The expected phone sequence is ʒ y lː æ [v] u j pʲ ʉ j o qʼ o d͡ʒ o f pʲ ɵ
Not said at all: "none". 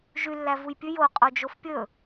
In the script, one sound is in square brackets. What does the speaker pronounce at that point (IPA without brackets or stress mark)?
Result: v